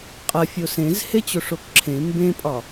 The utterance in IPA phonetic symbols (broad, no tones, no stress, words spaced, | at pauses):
qʼɐ fʲosẽz het͡ɕoʂokǁʰẽ mbẽpʼɒ